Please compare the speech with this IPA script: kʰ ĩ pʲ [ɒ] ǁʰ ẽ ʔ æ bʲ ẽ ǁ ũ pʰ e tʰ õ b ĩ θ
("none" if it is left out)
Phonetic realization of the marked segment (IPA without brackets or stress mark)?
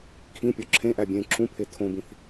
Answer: ɒ